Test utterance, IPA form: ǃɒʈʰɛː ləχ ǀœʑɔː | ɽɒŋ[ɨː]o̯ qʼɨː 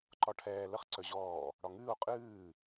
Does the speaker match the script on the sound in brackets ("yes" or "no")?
yes